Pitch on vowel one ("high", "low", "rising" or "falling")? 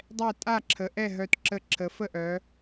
falling